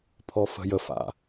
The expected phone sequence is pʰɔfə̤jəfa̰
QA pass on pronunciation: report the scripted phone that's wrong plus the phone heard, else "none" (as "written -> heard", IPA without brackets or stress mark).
none